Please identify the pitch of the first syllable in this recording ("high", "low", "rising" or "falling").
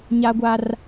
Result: high